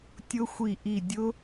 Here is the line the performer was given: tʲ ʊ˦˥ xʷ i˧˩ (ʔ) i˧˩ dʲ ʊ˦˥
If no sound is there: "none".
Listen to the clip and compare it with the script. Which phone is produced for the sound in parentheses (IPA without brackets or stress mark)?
ʔ